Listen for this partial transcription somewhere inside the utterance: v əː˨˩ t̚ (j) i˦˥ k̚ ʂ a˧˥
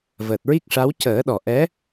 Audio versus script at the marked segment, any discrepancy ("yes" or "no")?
yes